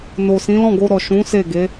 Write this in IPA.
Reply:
n o˨ s ĩ˨˦ l ɔ̃˦˨ ɡ o˧ ɾ ɔ˨ ʃ ũ˨˦ s e˦˨ ɡ e˨˦

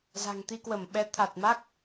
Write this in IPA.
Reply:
z a̤˨˩ ŋ t̪ i˧ k w ə˧˩ m ɓ ɛ˨˦ t̪ʰ a˨˩ t̚ m a˦˥ k̚

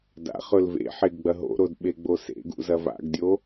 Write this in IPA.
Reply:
d a̰ χ ɵ l v ḛ ħ e ɡ ɡ͡b ɐ ɦ o̰ ɾ o d ɓ e ɡ͡b o s ḛ ɡ ṵ z ɐ v a̰ ɡ dʲ o

